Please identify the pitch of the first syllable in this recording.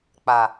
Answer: low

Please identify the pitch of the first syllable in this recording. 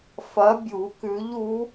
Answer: rising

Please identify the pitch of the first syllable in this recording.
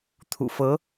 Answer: low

